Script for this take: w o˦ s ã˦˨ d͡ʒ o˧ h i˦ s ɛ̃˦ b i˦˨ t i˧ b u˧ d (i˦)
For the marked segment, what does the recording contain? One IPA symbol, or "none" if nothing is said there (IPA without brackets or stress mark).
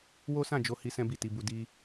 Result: i˦